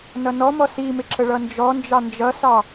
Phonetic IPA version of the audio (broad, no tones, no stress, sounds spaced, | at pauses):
n ʌ n ɔ m ɔ s i m ɪ ǁ ə ɭ ʌ n d͡ʒ ɔ n d͡ʒ ɑ n d͡ʒ ʌ s ɑ